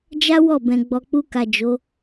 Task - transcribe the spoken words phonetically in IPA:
d͡ʒa˦ wɔ˦˨bɛ̃˨ ɡ͡bɔ˨k͡pu˧ka˨ d͡ʒo˨˦

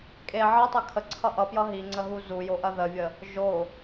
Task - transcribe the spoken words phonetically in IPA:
kʼe ʕʌtˤɐ kʰəǀʰʌ ʔʌpjʌ ɦiŋ͡ǀəɦu zujoʔɐ ðəvʲə | ʒo

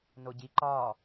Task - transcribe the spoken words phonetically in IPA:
noɟi ǃɒ

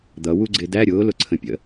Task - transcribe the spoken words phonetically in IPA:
d̪ʌ wuɡ͡ǀɪdæ ɾʲʊː lʊǀʰə̃pʲə̰

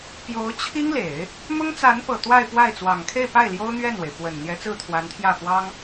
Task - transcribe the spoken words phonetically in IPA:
pjo˧˥ʊ̯t͡ɕʰi˥ŋle˨˩˦ɪ̯ | mʊ˥ŋt͡sa˧˥n pɤ˨˩t̪wa˥˧ɪ̯pwa˥˩ɪ̯ t͡swɑ˨˩ŋkʰe˥˧ɪ̯pa˥˩ɪ̯ ljo˥ʊ̯n̪ɥɛ˥˩nwe˩ɪ̯ fwə˨˩n n̪jɛ˧˥t͡sɹ̩˥˩t̪ʰwa˧˥nt̪ʰjä˥˩ fwɑ˥ŋ

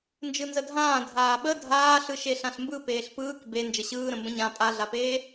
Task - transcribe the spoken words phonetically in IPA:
nd͡ʒɯnzədʱãː dʱaːɓə dʱaːɬɯ ʃeɬãɬmbɯ peːɬpɯːk be nd͡ʒəɕɯːɾə̃ mbə̃ɲã pʼaɮapeː

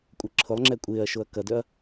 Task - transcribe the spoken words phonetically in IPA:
kʷʼəǁʰʊlˠŋ͡ǁɛ kʷʼɪːɐ̯ ʃoɐ̯kɐdœɐ̯

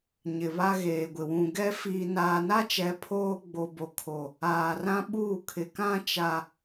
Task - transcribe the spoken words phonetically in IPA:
ɲɪ˨βa˦ɣeː˨ɡʷɪ˨ wũ˨ ɡɛ˦ fiː˨naː˨na˦t͡ʃɛ˨˦ pʰoː˦ ɡ͡bo˨bo˨kʰo˨ | aː˨rã˦ ɓuː˦˨kʰɪ˨kã˦t͡ʃa˨

